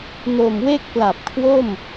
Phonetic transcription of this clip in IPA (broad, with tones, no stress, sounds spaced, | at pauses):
n o˨˩ m w e˥˩ k̚ p l a˨˩ p̚ kʰ w o˥˩ m